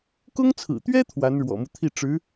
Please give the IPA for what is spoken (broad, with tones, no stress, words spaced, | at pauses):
kʊ˥ŋt͡sʰɹ̩˨˩t̪ɥɛ˥ t̪ʰwa˧˥nɻwɔ̰˨˩mu˦t̪ʰi˥˩ ʈ͡ʂɻ̩˧˥